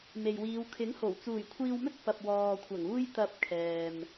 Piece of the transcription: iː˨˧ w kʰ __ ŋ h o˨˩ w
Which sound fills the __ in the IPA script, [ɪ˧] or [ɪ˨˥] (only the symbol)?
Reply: ɪ˨˥